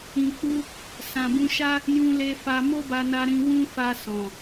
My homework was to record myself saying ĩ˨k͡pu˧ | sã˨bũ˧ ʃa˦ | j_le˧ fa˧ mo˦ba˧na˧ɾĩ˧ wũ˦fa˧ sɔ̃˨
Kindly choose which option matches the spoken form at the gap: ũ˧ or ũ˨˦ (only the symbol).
ũ˧